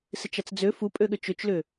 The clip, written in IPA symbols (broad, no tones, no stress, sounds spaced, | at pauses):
s ɪ t͡ʃ a t͡s d͡z ø f u pʼ ø ɠ ʏ t͡ʃ ø t͡ʃ l ʏ